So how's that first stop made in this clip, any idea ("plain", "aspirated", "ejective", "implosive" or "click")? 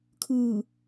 aspirated